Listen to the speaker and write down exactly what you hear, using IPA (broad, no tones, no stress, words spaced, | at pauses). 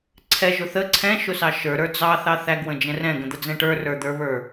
ǀʰɛʒʊ θə ǀʰɛ̃ʃʊsɑ ʃə˞ɾə˞ d͡zɑθɑ θæɡwə̃d͡ʒɛ̃ rɛ̃ɡə̃d̪əd͡zɛ̃ ʈə˞rə˞d̪ə˞βə˞